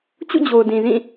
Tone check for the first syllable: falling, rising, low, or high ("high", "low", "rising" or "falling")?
falling